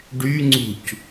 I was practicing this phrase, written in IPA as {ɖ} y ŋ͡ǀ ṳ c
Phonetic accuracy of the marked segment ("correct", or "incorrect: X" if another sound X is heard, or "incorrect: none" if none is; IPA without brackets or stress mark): correct